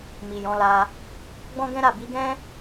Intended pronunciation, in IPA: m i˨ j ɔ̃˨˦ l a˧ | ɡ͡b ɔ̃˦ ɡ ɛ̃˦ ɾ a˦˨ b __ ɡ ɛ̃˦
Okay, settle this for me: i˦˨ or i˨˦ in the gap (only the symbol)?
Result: i˨˦